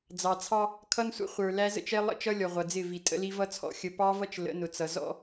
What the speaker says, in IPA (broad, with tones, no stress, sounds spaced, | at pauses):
d͡z ɑ˨ t͡sʰ ɑ˦ | kʰ ʌ˦ n sʷ ə̰˦ χʷ ə˞˨ l æ˦ z ə̰˦ t͡ʃ ɛ˦ lˠ ə̰˦ t͡ʃ ʌ˦ lʲ ɔ˨ ʁʷ ʌ˨ d͡z ɪ˦˨ v i˨ tʼ ə̰˦ l i˦ v ʌ˦ t͡sʰ ɔ̰˦ xʲ ə˨ p ɑ˦ v ʌ˦ t͡ʃ l ə̰˨˦ n ʊ˨ t͡s ʌ˨ z ɔ̰˦